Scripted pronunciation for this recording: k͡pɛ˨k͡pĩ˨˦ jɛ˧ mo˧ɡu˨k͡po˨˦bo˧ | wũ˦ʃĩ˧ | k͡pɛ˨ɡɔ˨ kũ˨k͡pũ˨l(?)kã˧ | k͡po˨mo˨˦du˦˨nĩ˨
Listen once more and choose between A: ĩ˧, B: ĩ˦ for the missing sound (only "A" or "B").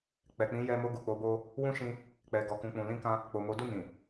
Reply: A